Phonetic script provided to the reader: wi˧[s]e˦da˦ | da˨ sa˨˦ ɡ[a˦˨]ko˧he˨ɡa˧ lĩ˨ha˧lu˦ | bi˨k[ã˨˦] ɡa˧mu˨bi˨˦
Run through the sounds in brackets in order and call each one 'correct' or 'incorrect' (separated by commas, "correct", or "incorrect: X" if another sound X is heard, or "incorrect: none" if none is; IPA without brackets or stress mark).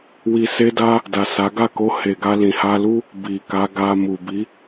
correct, correct, incorrect: a˨˦